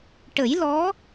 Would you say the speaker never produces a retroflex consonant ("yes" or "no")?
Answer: no